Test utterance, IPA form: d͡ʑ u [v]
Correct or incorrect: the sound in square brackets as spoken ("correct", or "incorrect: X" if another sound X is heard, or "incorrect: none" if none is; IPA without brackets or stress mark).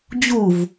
correct